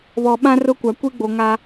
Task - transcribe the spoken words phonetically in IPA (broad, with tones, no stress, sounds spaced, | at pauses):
β ɔ˨ ɓ ã˦ r ʊ˦ kʷ a˨ kʷ i˦ ɡ͡b o˨ ŋ a˦